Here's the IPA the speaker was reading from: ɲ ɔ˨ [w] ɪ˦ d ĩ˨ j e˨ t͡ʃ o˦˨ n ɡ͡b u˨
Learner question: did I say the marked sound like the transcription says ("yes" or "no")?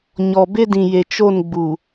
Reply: no